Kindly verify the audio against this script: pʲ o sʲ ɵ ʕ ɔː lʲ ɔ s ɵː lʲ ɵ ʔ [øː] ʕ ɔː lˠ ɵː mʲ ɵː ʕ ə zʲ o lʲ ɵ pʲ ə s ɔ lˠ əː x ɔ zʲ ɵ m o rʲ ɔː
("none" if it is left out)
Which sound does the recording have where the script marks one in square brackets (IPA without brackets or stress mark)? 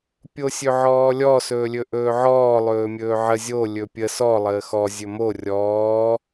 ɵː